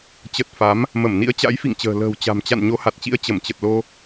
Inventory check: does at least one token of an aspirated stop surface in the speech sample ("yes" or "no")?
no